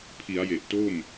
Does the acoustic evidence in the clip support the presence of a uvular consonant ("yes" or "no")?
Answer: no